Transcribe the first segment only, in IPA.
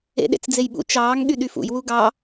ḛ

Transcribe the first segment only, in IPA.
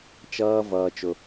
t͡ʃ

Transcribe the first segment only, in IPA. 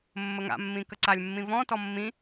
mː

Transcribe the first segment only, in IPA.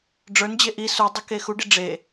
ɖ͡ʐ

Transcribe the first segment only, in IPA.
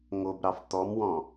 ŋ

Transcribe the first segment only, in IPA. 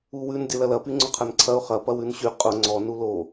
u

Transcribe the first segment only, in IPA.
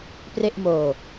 p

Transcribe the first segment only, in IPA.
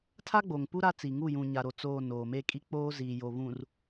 tʰ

